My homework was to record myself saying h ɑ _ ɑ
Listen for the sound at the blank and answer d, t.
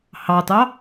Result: t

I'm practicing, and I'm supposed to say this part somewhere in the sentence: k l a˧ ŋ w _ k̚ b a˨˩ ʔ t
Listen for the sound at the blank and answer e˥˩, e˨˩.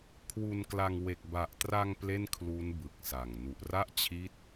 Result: e˨˩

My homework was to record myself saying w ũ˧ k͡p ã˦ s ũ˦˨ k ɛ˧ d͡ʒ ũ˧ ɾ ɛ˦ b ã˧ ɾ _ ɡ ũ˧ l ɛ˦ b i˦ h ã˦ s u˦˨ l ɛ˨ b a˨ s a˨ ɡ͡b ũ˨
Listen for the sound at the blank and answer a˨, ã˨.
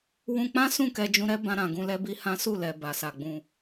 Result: ã˨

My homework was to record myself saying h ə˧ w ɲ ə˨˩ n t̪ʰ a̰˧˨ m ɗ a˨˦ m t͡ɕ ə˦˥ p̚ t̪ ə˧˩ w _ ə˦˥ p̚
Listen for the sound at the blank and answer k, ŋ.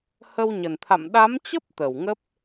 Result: ŋ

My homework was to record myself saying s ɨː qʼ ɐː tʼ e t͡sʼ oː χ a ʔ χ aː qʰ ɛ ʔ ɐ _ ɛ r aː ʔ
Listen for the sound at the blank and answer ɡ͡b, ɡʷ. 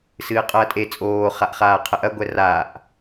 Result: ɡʷ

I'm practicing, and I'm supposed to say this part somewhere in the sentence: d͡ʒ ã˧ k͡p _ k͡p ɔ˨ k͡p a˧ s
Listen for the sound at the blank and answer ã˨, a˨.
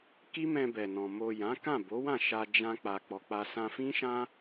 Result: a˨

